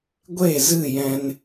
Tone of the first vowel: falling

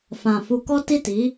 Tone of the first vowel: low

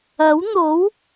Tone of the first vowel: rising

